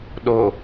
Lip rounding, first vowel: rounded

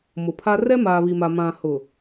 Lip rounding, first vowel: rounded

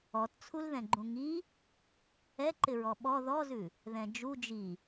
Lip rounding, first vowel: rounded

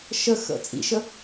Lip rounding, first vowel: unrounded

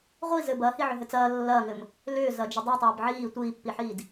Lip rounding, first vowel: unrounded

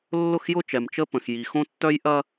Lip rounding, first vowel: rounded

